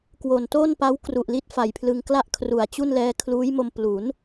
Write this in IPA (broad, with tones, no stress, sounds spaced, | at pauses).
k w o˨˩ n t o˥˩ n p a˦˥ w k r u˨˩ ʔ l i˦˥ t̚ f a˨˩ j pʰ l ɯ˧ ŋ k l a˥˩ ʔ kʰ r u˨˩ a̯ t͡ɕ u˥˩ n l ɛː˦˥ kʰ l uː˦˥ j m o˧ m p l u˩˦ n